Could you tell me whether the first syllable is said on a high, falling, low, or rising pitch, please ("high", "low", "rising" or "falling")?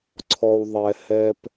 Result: low